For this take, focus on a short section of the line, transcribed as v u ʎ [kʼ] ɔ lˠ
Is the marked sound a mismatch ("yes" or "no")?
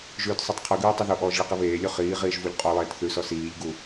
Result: yes